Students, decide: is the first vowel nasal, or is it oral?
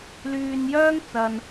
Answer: oral